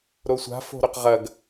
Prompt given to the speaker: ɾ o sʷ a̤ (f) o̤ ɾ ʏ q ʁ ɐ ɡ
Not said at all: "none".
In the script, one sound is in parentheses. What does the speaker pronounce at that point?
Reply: f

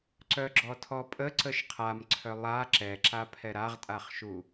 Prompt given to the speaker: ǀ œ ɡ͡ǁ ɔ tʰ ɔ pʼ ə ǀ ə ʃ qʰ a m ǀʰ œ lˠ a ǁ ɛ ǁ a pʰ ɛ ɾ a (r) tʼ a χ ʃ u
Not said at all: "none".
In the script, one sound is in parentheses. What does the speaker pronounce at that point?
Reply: ʁ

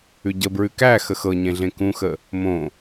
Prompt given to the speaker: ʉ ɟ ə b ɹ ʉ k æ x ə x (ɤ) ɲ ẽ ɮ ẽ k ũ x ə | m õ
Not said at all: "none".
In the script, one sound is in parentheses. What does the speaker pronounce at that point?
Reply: ɤ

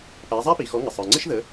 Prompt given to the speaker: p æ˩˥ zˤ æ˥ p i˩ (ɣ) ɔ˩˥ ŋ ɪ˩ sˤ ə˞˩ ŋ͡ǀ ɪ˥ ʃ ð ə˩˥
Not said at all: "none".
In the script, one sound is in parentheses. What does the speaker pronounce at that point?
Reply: x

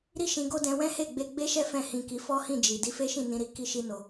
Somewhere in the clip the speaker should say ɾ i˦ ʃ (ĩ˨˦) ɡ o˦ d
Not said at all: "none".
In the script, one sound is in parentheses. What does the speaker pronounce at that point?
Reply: ĩ˧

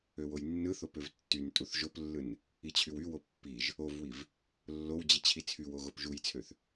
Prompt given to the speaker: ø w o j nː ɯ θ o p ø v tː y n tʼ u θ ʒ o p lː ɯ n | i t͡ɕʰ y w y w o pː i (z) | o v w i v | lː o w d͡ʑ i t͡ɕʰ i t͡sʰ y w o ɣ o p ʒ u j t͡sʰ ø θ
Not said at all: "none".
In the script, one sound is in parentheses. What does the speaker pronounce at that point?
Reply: ʒ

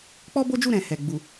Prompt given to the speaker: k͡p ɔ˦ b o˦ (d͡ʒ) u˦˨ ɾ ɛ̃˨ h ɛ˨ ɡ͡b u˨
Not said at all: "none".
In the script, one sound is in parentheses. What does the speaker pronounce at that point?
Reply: d͡ʒ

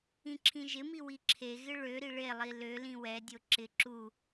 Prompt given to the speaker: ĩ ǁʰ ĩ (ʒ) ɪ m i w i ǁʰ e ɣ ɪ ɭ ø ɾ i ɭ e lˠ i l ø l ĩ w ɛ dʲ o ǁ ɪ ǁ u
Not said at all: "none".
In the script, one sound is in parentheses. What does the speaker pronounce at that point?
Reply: ʒ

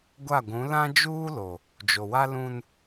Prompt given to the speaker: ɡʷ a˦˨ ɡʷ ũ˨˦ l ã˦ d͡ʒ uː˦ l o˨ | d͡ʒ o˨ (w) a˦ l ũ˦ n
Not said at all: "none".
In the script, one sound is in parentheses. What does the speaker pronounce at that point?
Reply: w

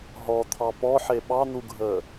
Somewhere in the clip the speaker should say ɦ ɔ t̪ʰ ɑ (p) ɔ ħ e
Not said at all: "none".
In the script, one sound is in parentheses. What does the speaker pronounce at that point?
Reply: p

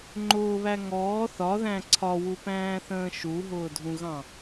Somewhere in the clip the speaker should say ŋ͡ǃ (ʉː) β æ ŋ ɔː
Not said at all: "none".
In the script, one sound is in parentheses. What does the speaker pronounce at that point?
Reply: ʊː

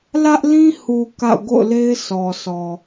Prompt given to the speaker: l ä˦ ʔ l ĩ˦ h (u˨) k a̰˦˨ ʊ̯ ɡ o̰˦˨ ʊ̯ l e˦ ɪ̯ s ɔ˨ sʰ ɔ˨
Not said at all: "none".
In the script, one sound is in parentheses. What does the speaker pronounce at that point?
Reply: u˨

